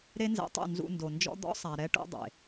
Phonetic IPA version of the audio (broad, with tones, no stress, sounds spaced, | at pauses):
ɾ e˦ n z ɛ̰˧ tˤ ṵ˦˨ n z ṵ˧ n d o˨ n d͡ʒ ɔ̰˦ d̪ ɔ̰˦ sˤ a˨ ɾ ɛ˦ ʈ ṵ˦ dˤ ḛ˨